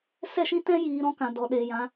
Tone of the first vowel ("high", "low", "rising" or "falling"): falling